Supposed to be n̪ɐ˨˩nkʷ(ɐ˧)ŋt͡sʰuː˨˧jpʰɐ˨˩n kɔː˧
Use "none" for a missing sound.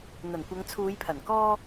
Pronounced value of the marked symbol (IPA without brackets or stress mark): ɐ˨˧